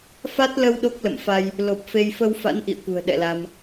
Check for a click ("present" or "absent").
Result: absent